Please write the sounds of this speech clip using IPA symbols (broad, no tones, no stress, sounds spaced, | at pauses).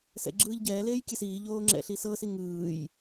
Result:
s ɛ̰ ɡ͡ǁ ɯː ʎ ɟ ɛː l eː j kʲ ɛ s iː ʎ oː ŋ͡ǁ ɛ̰ ɬ i s ɤ s i ŋ ɯː j